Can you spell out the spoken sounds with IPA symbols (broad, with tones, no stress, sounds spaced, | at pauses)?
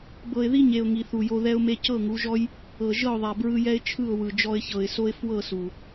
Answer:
b ɤ˨ ɪ̯ ð i˦ ɲ e˨ ʊ̯ ŋ i˨ θ u˨ j o˧ ð ɛ˦ ʊ̯ m e˧ c ɤ˦˨ ŋ u˨˦ ʒ ɔ˦ j | ɤ˨ ʒ ɤ˦˨ ʊ̯ ðˤ a˨ b ɹ ɯ˧ j ɛ˦ ɪ̯ t͡ʃʰ ɯ˦˨ ʊ̯ w ɯ˨ d͡ʒ ɔ˧ ɪ̯ ç ɤ˨ ɪ̯ s o˦ ɪ̯ f w ɤ˦˨ s u˨